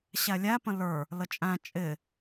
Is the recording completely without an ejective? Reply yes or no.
no